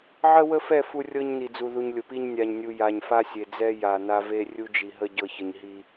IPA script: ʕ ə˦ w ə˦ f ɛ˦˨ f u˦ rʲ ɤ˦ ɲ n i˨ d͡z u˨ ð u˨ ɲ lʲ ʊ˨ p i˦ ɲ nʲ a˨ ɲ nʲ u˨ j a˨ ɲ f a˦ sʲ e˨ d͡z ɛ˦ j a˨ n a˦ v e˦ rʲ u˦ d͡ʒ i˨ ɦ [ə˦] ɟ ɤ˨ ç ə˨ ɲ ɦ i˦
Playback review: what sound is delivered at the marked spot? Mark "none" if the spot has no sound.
ə˦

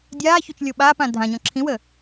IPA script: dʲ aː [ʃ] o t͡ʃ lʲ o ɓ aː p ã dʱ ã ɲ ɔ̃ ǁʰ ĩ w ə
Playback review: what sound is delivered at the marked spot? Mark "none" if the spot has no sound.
ç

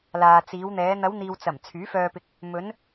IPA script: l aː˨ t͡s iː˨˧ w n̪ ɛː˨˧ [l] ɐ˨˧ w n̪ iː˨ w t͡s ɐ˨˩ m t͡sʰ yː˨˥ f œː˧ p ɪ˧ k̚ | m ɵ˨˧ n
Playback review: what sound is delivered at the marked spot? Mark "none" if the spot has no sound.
n̪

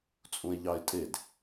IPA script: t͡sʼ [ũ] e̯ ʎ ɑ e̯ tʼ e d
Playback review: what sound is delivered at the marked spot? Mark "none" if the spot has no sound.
ũ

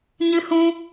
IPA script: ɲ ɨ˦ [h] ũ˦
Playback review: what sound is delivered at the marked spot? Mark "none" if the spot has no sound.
h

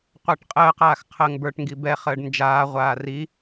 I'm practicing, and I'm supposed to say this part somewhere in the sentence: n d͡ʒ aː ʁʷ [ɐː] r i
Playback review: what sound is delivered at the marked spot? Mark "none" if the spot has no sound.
aː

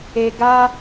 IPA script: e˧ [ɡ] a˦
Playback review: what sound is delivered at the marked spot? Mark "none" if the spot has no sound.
ɡ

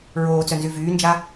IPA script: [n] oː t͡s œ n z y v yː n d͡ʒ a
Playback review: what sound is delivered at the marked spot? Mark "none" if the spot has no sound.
ɹ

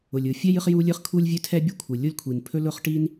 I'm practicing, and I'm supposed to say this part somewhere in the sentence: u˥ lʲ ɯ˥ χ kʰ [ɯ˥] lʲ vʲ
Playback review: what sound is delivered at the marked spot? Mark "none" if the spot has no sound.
u˥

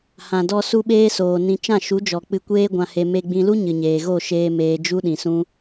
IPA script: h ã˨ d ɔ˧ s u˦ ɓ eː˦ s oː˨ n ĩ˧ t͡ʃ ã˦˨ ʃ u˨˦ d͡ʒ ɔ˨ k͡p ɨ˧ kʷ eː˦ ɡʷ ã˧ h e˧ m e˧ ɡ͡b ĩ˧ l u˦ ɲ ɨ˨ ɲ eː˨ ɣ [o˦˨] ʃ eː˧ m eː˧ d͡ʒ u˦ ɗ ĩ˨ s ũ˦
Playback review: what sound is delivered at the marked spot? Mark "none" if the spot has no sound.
o˦˨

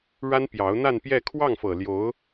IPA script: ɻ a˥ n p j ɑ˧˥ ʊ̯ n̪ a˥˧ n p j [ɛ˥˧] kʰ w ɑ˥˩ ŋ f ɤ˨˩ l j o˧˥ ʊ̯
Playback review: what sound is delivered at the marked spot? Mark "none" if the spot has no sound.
ɛ˥˧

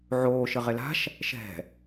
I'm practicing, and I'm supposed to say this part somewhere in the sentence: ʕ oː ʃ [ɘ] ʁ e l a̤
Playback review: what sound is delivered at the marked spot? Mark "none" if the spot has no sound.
ɘ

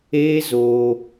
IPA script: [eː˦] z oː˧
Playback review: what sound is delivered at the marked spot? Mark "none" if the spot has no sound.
eː˦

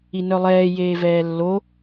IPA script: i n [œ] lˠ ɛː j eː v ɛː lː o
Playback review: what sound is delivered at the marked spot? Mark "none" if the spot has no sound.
œ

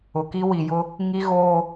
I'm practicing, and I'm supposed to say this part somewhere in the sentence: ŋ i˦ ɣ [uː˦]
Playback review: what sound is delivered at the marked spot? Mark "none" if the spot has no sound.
oː˦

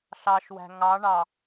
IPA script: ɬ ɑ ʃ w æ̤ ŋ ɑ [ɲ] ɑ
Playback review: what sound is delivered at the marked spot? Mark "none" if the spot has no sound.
ɳ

